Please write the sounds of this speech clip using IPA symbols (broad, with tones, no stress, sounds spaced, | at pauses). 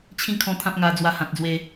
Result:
t͡ɕʰ ĩ˥˧ kʰ ɔ̃˧ t̪ʰ ã˦ p̚ ŋ a˧ d͡z w a˧ h ã˨ t̚ d͡z w e˧